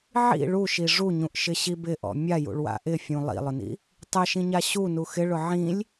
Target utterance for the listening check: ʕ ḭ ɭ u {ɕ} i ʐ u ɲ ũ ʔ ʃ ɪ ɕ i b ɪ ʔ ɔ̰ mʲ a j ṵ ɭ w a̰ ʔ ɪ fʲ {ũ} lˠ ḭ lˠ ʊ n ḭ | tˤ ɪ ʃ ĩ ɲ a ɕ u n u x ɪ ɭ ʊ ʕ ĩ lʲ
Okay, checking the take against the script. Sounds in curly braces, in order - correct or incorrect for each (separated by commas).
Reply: incorrect, correct